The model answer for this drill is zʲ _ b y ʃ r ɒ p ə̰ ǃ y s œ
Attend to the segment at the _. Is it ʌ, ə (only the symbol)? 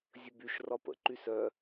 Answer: ə